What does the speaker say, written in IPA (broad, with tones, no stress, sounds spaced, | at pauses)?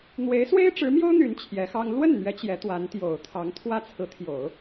n̪ w e˧˥ ɪ̯ s w e˥ ɪ̯ ʈ͡ʂ ɻ̩˧˥ m j o˥ ʊ̯ n̪ y˧˥ n t͡ɕʰ j ɛ˧˥ x ɑ˥ ŋ l w ə˥˩ n n̪ ɥ ɛ˧˥ t͡ɕ j ɛ˧˥ t̪ w a˧˥ n t̪ j o˨˩ ʊ̯ t̪ʰ ɑ˧˥ ŋ t̪ʰ w ä˥ t͡sʰ ɹ̩˧˥ t̪ʰ j o˨˩˦ ʊ̯